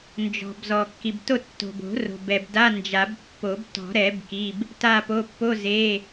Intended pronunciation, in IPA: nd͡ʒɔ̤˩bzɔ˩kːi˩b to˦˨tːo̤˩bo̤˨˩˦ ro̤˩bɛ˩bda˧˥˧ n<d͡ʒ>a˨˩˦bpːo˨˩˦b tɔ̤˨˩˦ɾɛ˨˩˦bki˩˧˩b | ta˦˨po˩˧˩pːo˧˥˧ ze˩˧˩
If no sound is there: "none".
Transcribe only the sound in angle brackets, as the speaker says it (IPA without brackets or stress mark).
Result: d͡ʒ